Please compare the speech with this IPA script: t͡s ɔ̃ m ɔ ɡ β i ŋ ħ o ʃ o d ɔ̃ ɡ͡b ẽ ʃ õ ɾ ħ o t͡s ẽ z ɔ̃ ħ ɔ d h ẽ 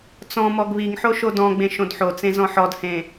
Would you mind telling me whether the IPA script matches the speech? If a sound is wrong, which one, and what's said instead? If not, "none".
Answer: ɾ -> d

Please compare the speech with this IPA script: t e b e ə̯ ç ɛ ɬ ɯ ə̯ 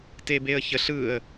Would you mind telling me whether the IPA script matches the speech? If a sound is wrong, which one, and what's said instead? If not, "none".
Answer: ɛ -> ə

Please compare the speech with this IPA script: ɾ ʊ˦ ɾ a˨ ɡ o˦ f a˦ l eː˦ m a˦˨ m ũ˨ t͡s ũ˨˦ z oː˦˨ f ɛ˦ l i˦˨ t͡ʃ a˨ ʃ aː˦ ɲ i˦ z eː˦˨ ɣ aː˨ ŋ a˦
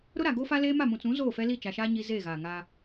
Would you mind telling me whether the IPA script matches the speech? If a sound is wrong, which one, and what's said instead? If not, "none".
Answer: none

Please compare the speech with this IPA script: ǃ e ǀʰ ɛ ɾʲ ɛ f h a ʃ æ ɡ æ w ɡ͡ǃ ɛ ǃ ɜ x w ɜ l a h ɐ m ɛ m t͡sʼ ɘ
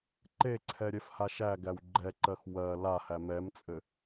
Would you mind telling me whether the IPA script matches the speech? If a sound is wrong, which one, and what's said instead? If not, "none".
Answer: ɐ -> æ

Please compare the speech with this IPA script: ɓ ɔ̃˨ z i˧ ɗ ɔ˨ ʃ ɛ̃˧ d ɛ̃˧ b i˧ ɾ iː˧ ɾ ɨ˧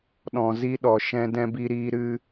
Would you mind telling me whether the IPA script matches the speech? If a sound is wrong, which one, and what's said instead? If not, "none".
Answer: ɓ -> ɗ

